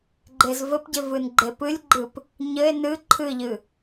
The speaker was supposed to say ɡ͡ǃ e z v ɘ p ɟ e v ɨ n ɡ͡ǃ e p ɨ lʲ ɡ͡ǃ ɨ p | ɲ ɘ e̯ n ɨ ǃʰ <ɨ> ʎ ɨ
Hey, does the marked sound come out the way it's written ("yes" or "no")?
yes